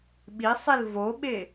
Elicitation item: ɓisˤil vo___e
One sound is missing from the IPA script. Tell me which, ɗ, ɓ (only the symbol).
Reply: ɓ